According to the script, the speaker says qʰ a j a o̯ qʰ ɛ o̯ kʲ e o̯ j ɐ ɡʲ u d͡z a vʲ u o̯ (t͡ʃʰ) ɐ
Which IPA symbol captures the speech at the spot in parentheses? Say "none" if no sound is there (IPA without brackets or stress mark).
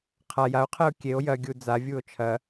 t͡ʃʰ